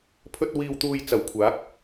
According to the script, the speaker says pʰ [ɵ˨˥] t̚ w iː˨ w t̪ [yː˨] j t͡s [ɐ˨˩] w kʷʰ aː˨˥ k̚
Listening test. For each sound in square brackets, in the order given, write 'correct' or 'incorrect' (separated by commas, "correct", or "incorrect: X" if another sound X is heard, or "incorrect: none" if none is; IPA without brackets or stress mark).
incorrect: ɵ˧, incorrect: uː˨, correct